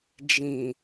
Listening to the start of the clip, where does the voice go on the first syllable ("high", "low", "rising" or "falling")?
low